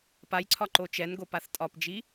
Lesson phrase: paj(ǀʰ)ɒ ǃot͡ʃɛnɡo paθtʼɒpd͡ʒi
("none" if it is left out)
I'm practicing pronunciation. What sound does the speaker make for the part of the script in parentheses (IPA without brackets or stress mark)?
ǀʰ